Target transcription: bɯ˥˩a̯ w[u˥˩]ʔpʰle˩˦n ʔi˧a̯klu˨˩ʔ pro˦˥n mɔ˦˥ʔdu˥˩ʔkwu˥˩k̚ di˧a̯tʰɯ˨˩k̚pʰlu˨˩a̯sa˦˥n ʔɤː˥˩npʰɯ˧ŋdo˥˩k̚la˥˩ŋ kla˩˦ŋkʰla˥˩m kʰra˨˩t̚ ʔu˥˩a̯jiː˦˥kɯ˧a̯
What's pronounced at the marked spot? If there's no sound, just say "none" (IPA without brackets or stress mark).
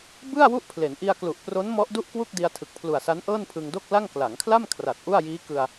u˥˩